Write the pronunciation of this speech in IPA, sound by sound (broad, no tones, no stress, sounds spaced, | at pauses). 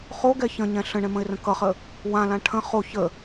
χ o ɡ ɛ ç ə̃ ɲ ɛ̃ ɬ ə̃ ɳ ɛ̃ m ə̃ ɪ̯ r ə̃ k ʌ χ ə | w ã l ã ʈʰ ə̃ χ o ç ə